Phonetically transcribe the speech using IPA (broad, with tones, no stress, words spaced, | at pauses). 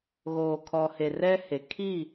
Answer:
ɣoː˨kʰɔ˨he˨ rɛ˦he˨ kʰi˦˨